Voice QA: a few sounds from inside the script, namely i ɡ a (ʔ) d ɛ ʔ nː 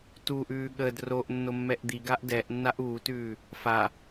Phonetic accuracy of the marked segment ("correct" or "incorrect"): correct